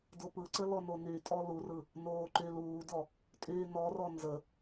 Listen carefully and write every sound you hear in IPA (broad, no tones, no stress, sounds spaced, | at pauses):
d o p ɯ ǀ ə l ɔ n o n y tʼ ɔ l u r ɯ | n oː ǃ y l uː d ɔ | tʼ yː n ɔ r ɔ n z ə